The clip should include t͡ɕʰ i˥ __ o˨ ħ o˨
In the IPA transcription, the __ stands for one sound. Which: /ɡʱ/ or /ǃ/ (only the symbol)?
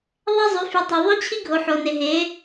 ɡʱ